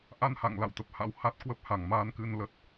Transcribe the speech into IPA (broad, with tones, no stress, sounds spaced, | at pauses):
ʔ a˧ n h a̰˧˨ ŋ l a̰˧˨ w t̪ ə˨˩ p̚ h a̰˧˥ w h a˦˥ t̚ k w ə˦˥ p̚ h a˧˩ ŋ m aː˧ n k ɨ˧ n l ə˦˥ t̚